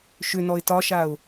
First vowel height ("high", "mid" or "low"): high